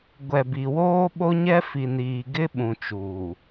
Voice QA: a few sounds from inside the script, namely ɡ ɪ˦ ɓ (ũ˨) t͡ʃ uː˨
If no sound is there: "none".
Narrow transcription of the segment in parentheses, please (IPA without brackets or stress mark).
ũ˨